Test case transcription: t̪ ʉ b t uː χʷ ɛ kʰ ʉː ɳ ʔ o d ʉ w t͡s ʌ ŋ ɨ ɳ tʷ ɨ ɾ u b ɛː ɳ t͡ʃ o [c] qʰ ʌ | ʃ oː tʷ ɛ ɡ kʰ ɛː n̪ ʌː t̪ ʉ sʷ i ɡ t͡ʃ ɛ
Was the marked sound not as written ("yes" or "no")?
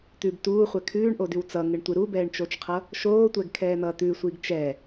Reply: yes